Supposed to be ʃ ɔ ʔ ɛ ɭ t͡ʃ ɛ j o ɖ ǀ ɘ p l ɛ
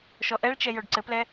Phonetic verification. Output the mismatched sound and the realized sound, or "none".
none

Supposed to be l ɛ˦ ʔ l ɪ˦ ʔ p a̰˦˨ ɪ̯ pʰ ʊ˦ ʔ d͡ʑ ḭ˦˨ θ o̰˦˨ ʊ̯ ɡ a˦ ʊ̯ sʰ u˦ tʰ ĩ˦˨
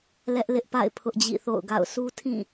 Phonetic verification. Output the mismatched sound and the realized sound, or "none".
a˦ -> a̰˦˨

